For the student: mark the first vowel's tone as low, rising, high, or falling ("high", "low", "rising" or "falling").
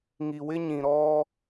low